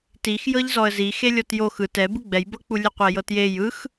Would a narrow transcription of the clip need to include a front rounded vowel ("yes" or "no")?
no